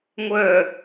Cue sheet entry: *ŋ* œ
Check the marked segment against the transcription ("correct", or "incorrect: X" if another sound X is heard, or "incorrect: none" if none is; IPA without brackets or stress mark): incorrect: ŋʷ